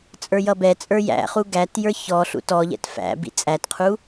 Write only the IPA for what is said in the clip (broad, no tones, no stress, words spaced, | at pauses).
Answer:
t͡sʼə˞jʌbɛt͡sʼə˞ jæ̰χu ɡætjə˞ çɔ ɬṵtɔʎɛ̰t fæ̰ bḭt͡sʼætqʰu